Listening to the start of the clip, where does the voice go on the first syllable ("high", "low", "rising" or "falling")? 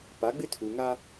rising